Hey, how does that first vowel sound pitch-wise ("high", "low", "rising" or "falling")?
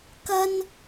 high